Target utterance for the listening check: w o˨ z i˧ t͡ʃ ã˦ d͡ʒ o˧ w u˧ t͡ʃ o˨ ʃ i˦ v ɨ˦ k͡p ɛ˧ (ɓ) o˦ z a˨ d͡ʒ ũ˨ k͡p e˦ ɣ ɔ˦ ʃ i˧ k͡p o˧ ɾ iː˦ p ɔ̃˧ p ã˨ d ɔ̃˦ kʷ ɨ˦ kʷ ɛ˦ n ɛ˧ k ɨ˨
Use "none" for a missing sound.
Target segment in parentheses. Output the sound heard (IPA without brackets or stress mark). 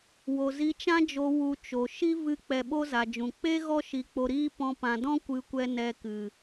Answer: ɓ